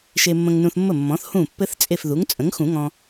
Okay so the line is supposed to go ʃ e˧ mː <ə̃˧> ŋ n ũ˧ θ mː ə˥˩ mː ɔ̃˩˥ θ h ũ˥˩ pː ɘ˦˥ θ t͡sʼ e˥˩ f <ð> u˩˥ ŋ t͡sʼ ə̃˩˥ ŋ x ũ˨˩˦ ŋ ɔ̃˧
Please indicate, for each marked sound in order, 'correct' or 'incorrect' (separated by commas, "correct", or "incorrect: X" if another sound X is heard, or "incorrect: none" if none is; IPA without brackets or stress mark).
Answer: correct, correct